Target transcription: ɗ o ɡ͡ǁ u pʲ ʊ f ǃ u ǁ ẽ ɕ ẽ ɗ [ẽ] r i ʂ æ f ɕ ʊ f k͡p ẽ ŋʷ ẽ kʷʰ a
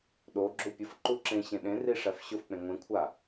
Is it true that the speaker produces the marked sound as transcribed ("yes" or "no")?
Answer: yes